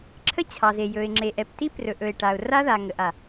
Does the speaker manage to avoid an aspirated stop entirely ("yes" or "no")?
no